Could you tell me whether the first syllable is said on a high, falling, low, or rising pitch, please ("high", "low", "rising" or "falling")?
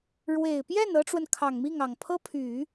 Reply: low